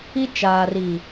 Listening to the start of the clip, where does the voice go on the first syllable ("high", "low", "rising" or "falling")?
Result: high